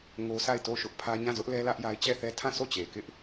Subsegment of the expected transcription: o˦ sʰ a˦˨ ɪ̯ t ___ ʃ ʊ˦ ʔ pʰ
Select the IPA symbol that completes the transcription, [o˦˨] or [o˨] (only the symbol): o˦˨